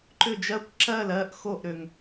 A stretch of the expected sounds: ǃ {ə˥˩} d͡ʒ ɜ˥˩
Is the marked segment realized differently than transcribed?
yes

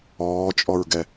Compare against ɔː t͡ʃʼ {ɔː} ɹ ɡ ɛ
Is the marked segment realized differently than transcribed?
yes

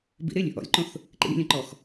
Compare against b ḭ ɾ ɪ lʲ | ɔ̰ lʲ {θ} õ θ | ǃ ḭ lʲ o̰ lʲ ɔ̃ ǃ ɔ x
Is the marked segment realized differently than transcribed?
yes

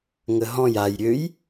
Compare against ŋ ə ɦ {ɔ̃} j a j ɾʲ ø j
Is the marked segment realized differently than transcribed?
no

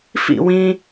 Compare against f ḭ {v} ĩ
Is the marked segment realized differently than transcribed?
yes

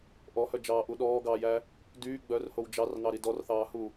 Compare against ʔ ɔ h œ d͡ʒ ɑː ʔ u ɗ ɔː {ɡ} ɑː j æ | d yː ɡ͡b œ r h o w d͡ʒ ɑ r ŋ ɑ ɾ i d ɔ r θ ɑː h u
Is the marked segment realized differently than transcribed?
no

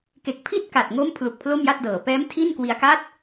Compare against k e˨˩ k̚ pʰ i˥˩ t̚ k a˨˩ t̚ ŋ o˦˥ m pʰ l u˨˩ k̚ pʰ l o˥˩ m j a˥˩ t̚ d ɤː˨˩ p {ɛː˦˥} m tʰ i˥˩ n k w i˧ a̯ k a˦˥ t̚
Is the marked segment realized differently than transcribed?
no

